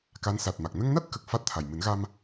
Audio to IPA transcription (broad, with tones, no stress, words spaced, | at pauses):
ka˧˥nsa˨˩t̚ma˨˩k̚ nə˧ŋna˦˥t̚kə˨˩k̚ fa˦˥t̚t̪ʰa˨˩j mɨ˨˩˦nɣa˧m